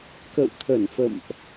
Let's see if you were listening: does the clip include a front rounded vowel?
no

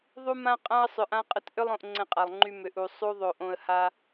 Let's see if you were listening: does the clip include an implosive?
no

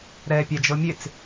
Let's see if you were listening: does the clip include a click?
no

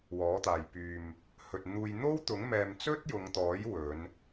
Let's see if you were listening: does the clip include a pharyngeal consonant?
no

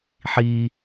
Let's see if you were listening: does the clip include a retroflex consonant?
no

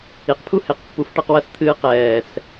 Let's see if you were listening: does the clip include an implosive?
no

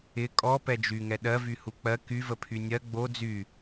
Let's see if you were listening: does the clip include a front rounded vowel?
yes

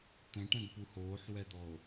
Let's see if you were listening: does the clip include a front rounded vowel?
no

